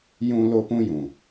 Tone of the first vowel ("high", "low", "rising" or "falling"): high